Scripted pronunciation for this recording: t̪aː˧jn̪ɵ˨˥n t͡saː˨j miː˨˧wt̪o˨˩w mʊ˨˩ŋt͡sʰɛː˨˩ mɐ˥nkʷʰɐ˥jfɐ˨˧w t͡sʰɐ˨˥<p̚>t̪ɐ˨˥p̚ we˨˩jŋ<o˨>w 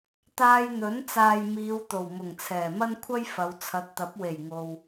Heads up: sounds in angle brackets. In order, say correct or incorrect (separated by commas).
incorrect, correct